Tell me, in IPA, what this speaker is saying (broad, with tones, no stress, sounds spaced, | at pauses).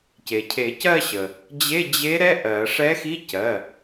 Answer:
c e˩ cʰ e˨˩˦ c ɜ˥˧ ɕ ə˩ | d͡ʑ e˧˥˧ d͡ʑ e˧˥ ɾ ɛ˧˥˧ ʔ ɜ˨˩˦ ʂ ɛ˧˥ x i˧˥˧ c ɜ˩˧˩